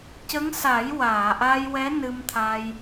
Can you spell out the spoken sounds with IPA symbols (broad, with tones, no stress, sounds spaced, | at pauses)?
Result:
c ə˧˥ ŋ s a˨˩˦ j w aː˨˩˨ ʔ a˧ j w ɛ˧˥ n ɨ˧ m t̪ʰ a˧ j